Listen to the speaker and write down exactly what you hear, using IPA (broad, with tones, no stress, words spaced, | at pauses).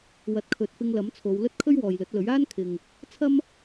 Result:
wɐ˨˥t̚kʰɵ˨˥t̚fɪ˧ŋ lɐ˨˥mt͡sʰo˨˧wlɵ˥t̚ kʰɵ˥ɥwɔː˨jlɵ˨˥t̚lɵ˨˥ɥ aː˥nkʰɪ˨ŋ | t͡sʰɐ˥m